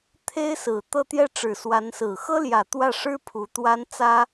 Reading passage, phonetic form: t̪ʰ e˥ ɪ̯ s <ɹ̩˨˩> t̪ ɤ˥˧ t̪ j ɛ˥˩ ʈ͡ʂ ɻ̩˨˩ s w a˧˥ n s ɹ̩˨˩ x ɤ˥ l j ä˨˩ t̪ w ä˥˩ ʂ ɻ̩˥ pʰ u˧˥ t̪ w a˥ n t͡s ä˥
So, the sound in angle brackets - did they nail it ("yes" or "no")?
yes